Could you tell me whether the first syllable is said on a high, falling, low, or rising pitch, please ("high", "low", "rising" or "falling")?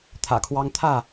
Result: low